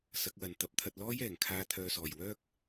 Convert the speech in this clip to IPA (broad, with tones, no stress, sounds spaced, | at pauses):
s ɐ˨˥ k̚ w ɐ˨ n t̪ ɐ˨˥ p̚ t̪ʰ ɐ˧ t̚ l ɔː˥ j ɛː˨˩ ŋ kʰ aː˧ t̪ʰ œː˨ s ɔː˨˩ j w œː˥ k̚